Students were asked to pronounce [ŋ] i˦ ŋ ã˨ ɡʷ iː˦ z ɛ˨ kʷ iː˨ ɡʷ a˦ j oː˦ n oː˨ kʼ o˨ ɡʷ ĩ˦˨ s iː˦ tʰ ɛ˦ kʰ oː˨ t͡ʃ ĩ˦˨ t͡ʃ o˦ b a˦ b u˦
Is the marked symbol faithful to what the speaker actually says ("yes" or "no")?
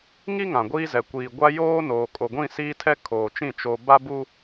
yes